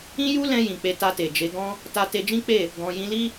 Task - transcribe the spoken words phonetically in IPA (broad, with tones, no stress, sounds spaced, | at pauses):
ĩ˦ j u˦ l ɛ̃˧ j ĩ˨ k͡p e˧ t a˧ t e˨ d͡ʒ e˨˦ ɡ ɔ̃˦ | t a˧ t e˧ d͡ʒ ĩ˦ k͡p e˦˨ | ɡ ɔ̃˧ j ĩ˧ l i˦